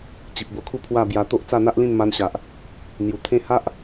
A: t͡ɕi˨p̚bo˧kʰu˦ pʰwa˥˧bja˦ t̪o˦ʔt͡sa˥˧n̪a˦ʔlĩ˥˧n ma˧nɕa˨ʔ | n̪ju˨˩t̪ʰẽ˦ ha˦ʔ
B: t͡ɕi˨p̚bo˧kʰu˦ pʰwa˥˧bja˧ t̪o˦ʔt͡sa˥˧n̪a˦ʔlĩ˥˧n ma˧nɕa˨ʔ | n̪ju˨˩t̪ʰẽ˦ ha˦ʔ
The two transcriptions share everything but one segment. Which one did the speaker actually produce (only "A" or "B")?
B